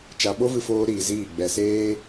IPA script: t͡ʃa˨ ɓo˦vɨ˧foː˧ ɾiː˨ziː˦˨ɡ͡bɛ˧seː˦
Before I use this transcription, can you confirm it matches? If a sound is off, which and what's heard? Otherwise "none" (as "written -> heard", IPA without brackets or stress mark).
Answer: none